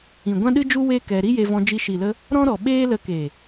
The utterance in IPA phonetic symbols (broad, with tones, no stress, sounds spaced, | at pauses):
ĩ˨ ɡʷ ã˦ ɗ ɨ˦ d͡ʒ u˦ w e˦ k ɛ˧ ɾ i˦ j e˧ v ɔ̃˧ d͡ʒ i˧ ʃ i˨ l ə˧ | ɾ ɔ̃˦ ɾ ɔ˨ ɓ eː˦ l ə˧ k e˨